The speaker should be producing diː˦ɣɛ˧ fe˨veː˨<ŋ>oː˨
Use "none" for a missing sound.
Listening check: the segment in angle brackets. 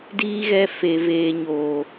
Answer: ɲ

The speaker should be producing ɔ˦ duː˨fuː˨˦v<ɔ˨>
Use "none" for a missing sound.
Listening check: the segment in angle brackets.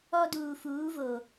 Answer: o˨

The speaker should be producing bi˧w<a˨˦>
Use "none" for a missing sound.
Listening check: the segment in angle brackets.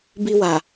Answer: a˨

